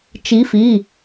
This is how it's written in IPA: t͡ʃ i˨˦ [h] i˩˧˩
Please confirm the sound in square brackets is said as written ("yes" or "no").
no